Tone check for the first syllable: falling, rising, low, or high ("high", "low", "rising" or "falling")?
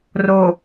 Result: low